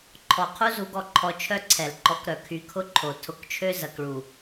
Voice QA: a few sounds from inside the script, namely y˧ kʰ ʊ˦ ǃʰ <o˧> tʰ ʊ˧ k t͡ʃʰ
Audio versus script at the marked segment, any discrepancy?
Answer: yes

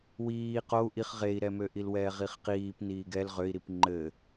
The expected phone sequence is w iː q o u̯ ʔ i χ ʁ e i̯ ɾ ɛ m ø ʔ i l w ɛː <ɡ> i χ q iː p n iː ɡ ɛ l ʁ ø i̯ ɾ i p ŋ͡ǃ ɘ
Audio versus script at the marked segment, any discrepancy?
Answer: yes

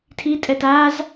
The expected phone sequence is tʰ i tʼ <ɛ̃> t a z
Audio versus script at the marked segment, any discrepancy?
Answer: yes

